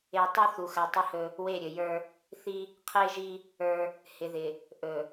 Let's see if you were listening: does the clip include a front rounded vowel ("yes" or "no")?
no